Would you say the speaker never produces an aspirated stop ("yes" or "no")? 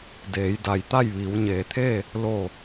no